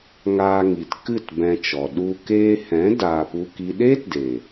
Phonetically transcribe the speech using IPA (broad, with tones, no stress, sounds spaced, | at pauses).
ŋ aː˧ ŋ i˨ t k ɨ˦˨ t b ɛ̃˧ t͡ʃ ɔ˨ ɗ u˧ k eː˧ h ɛ̃˨˦ d aː˧ p u˦ k i˦ ɗ eː˦ t d eː˨